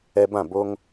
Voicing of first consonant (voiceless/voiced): voiced